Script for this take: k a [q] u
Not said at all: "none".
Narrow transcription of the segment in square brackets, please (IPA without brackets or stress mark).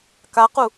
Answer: q